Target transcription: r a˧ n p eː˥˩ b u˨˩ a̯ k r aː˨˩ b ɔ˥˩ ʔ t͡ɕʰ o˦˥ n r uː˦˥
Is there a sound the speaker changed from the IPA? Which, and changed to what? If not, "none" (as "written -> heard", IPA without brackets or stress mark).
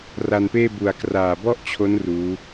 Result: none